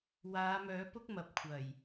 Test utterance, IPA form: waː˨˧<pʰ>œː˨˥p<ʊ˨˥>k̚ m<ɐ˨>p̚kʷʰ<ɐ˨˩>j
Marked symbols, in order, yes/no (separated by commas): no, no, yes, yes